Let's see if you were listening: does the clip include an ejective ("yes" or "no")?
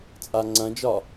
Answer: yes